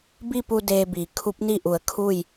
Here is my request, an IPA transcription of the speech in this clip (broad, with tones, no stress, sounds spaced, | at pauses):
b i˥˨ p u˧ d eː˧ b iː˩˧ kʰ u˧˥ p̚ n i˥˨ ʔ u˧˩ ə̯ kʰ uː˥˨ j